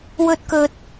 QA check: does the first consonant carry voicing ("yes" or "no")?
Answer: yes